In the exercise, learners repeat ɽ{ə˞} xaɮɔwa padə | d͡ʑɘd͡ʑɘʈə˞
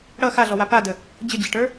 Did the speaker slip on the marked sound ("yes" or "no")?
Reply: yes